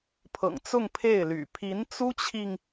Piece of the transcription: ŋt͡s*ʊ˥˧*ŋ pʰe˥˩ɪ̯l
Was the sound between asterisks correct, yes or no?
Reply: yes